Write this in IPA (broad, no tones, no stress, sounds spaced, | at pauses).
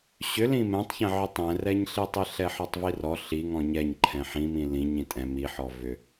ɕ ʏ l ĩ m ɛ̃ tˤ ç ɛ̃ ʕ ʏ tˤ ɛ̃ r ɛ ɲ ɬ i tˤ i ɬ ɛ ħ ɔ tˤ v i r ɔ ɬ i ŋ ɔ̃ ɲ ɛ ɲ ǃʰ ɛ̃ ħ ĩ m ĩ l ĩ ɲ ĩ tʼ ɛ̃ m i ħ ɔ v ʏ